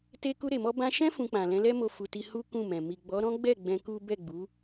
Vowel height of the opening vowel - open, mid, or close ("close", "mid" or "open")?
mid